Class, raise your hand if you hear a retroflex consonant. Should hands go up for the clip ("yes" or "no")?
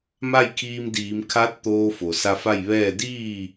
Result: no